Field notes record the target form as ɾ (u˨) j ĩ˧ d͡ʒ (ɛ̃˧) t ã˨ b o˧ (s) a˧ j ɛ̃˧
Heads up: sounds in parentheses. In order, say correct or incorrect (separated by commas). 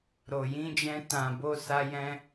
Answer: incorrect, correct, correct